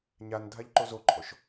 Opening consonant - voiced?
yes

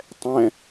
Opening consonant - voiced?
no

